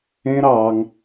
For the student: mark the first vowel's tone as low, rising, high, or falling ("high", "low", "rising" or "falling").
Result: high